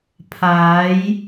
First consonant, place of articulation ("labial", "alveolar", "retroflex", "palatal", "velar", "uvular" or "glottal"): labial